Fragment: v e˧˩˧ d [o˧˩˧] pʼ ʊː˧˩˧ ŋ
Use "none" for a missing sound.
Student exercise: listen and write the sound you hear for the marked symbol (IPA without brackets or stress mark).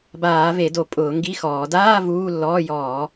o˧˩˧